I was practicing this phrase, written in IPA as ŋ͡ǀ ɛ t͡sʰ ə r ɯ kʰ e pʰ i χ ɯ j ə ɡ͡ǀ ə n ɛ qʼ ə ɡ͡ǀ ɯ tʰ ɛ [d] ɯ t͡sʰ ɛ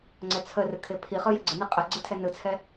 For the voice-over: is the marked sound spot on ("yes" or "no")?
no